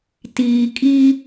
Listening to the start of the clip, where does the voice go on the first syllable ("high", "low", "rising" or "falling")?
low